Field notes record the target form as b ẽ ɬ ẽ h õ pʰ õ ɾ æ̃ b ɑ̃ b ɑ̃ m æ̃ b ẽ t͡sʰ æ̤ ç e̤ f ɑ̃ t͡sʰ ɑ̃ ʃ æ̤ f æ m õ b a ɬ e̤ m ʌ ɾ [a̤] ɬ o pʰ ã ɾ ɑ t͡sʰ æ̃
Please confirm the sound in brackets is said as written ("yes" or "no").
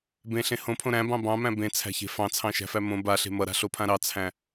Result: yes